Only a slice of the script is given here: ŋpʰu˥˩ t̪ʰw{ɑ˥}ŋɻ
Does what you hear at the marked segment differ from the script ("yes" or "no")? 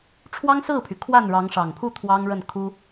no